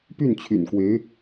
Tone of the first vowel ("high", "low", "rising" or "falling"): falling